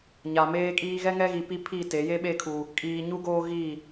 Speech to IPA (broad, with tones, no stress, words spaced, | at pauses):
ɲa˨meː˦kʼiː˦ ɣɛ˦ ŋɛ˦ɣi˨pi˦ pʰi˦˨te˨˦ je˦ɓe˦˨kʰu˨ | kʼiː˨ɲu˦ ɡoː˦ ɣi˦˨